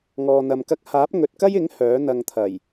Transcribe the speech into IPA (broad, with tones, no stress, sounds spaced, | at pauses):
ŋ ɔː˧ n̪ ɐ˧ m k ɐ˥ k̚ h aː˨˥ p̚ ŋ ɵ˨ t̚ k ɐ˥ j ɪ˨˥ ŋ h œː˨˥ n̪ ɐ˧ ŋ t̪ʰ ɐ˨˩ j